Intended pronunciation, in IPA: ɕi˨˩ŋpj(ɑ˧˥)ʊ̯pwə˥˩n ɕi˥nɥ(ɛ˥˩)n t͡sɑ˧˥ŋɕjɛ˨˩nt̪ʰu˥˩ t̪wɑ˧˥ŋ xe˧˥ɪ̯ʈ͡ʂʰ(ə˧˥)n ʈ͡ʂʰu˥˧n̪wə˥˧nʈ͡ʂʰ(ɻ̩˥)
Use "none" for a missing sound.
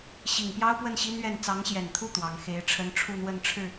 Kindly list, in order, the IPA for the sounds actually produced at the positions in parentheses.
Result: ɑ˥, ɛ˥˩, ə˥, ɻ̩˥˩

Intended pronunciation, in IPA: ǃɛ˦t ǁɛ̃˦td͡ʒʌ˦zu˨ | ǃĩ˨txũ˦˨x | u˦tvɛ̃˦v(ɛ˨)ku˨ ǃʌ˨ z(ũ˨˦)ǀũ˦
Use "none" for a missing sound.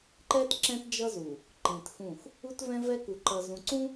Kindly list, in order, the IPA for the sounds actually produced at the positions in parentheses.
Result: ɛ˦, ũ˨

